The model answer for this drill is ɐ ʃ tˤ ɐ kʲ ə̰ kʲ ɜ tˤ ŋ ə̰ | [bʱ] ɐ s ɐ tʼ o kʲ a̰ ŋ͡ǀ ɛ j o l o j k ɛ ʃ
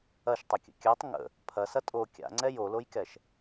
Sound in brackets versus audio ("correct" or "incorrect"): incorrect